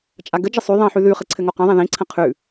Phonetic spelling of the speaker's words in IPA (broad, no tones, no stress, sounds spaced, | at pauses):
t͡ʃʼ a ɡ ə d͡ʒ ə sˤ ʉ ðˤ ĩ ħ ʉ ð ʉ χ ɘ ǀʰ ɘ ŋ o q ɛ̃ ðˤ ɛ̃ ð ĩ ǀʰ ə̃ qʰ ʉ